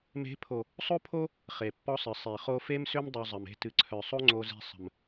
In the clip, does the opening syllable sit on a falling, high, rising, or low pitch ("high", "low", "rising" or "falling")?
rising